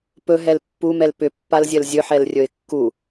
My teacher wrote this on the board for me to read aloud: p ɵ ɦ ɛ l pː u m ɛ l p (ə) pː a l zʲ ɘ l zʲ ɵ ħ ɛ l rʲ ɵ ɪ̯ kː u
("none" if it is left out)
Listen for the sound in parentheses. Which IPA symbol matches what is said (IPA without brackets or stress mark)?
ʏ